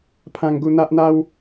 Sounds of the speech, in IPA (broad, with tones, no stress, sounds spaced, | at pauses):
pʰ ã˧ ŋ ɡ u˧ n̪ a˦ ʔ n̪ a˦ w